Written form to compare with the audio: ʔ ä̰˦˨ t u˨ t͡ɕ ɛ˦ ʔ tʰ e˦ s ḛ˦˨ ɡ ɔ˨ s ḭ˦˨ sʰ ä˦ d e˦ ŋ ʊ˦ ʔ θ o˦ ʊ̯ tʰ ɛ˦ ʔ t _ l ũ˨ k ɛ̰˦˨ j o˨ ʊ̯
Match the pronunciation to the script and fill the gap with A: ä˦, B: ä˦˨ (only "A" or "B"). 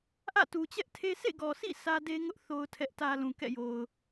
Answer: A